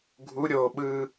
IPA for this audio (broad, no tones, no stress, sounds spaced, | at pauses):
ɡʱ u ɾʲ o ɓ ɯ